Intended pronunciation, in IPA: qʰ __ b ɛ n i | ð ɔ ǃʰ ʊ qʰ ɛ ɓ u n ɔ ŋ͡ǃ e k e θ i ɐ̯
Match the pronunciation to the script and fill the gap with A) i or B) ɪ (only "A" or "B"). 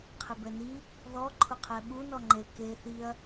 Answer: B